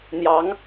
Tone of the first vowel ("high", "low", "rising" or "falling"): rising